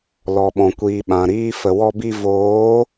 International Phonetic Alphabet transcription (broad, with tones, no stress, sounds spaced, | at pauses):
l ɔ˨ ɓ ɔ̃˨ kʷ iː˨ ɓ ã˨ ɾ iː˧ f ə˨ w ɔ˧ b i˧ v oː˨˦